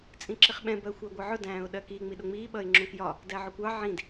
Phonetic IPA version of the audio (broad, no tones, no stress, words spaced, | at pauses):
t͡sʼĩǁɪχɓɛ̃ bɜxʷæɡʷʌʕʊ dæ̃ːʊ̯ɗɜki ŋ͡miɗʊŋ͡miː ɓʌɪ̯ŋ͡ǁũkjɒ | dæʕʊkʷɑ ʕĩd